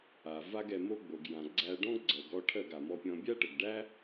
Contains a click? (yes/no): yes